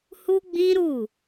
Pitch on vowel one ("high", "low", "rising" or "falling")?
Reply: high